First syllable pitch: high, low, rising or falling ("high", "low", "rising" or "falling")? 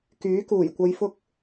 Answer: rising